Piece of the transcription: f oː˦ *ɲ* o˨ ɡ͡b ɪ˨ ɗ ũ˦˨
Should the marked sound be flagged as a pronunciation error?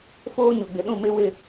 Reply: no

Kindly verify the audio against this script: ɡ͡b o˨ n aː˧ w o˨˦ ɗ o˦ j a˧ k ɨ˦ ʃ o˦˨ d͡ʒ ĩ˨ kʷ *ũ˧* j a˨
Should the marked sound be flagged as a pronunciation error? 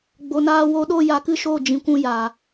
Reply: no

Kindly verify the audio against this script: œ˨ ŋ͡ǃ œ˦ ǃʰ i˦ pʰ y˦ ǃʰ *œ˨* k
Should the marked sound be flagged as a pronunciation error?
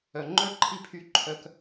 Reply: yes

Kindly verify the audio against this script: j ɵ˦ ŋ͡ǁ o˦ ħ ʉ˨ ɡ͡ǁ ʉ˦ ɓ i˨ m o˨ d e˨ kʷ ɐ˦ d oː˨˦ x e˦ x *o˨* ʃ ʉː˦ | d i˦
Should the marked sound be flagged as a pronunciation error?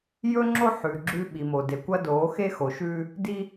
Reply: no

